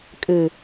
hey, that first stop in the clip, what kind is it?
ejective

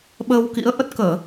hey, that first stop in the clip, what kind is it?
implosive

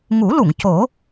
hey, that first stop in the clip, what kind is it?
plain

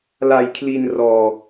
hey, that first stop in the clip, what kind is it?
aspirated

